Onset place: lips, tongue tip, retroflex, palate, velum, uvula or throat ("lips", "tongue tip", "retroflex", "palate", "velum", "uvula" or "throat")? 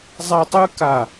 tongue tip